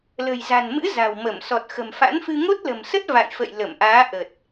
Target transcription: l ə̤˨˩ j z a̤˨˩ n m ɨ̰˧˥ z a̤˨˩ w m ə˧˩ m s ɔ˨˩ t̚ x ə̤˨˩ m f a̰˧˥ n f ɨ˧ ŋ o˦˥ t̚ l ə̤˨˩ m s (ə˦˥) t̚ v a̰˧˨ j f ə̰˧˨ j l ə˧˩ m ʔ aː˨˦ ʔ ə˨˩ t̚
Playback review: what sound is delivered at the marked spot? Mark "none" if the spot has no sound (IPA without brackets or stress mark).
ə˦˥